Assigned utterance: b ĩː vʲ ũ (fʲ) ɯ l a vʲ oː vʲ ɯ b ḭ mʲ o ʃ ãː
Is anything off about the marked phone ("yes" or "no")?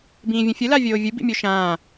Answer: no